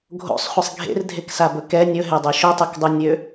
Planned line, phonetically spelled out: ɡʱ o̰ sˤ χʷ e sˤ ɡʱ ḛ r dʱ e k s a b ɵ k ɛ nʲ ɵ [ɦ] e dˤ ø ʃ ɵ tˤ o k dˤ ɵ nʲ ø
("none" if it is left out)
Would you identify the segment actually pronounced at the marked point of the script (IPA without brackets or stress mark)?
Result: ɦ